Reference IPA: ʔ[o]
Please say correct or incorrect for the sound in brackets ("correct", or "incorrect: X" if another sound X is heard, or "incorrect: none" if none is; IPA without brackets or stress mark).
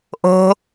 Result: incorrect: o̤